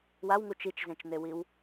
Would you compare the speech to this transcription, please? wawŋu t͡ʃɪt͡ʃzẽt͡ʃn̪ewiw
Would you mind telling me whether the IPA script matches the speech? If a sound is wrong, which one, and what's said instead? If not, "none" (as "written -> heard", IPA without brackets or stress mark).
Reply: ɪ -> i